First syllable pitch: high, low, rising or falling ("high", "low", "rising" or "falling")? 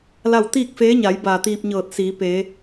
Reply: falling